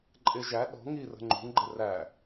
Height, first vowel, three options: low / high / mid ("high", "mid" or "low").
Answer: high